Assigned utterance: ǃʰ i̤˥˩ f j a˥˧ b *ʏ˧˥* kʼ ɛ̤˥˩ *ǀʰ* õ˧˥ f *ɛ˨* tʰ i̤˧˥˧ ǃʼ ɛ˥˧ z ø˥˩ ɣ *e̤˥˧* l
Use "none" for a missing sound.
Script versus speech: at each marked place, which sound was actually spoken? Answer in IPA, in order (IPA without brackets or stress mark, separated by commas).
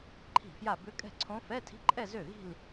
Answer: ʏ˧˥, ǀʰ, ɛ˧˥˧, i̤˥˧